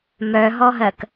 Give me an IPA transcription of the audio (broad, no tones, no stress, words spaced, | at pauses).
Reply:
mœɦɔɦɜk